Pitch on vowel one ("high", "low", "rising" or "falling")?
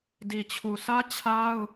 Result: low